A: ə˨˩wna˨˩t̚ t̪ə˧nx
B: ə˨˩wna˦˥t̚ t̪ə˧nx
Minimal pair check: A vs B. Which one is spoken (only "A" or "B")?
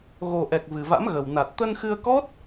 A